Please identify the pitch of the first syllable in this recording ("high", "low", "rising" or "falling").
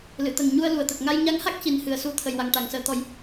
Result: low